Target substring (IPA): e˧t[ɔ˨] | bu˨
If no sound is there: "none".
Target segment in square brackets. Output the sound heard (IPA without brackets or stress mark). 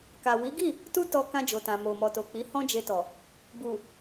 ɔ˨